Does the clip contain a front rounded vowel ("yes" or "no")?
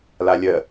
no